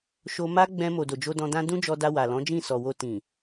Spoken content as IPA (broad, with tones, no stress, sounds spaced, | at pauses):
ʃ o˧ m a˦ ɡ͡b ɛ̃˧ m o˨ d o˨ d͡ʒ o˧ d ɔ̃˧ d ã˦ d ũ˦ d͡ʒ ɔ˧ d a˧ w a˨ l ɔ̃˨˦ d͡ʒ ĩ˦˨ s ɔ˨ w o˧ t ĩ˨